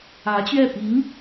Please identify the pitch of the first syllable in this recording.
rising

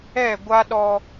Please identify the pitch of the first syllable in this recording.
falling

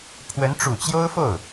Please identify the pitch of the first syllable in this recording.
rising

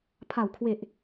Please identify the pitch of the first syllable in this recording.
low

